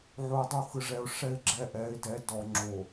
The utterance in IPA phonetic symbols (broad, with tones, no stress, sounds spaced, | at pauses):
ʕ o˨ ɪ̯ dˤ u˦˨ x ɯ˨ ʐ ɛ˨ ʊ̯ ʂ ɛ˦ ɪ̯ ɡ͡ǁ ɛ˦ ʔ ɛ˨˦ ɪ̯ d ɛ˨˦ d ɔ˨ ŋ͡ǁ o˨